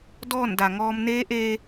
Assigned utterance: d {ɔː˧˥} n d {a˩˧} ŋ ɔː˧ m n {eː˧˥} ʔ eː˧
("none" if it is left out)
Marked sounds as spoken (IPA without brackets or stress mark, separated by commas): ɔː˥˨, a˩, eː˧˥